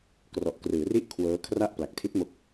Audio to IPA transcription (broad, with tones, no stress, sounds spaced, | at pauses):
k r ɔ˨˩ ʔ k r ɯː˩˦ r i˦˥ ʔ kʰ w ɤː˦˥ kʰ r a˥˩ ʔ p l a˨˩ k̚ tʰ i˦˥ t̚ m o˦˥ k̚